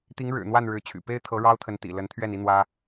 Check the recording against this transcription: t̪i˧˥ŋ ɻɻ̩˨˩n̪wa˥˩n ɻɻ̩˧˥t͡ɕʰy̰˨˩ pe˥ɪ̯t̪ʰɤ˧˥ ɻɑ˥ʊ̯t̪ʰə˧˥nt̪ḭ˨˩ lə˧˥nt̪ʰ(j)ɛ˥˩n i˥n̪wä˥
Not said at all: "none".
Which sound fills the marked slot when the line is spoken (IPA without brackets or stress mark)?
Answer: ɥ